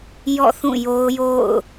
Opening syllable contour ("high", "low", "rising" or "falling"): falling